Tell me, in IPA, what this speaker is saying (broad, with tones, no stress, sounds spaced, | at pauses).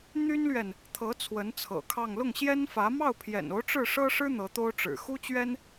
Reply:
n̪ y˥ n l ɥ ɛ˨ n | t̪ʰ ɤ˧˥ t͡sʰ w ə˧˥ n t͡sʰ ɤ̰˨˩ kʰ ɑ˥˧ ŋ l ʊ˥˩ ŋ ɕ j ɛ˥ n f ä˧˥ m ɑ˥˩ ʊ̯ pʰ j ɛ̰˨˩ n o˧˥ ʊ̯ ʈ͡ʂ ɻ̩˥˩ ʂ ɤ˥ ʂ ɻ̩˥ n̪ ɤ˧˥ t̪ o˥ ʊ̯ ʈ͡ʂ ɻ̩˨˩ x u˥ t͡ɕ ɥ ɛ˥ n